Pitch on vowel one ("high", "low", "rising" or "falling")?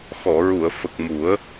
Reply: low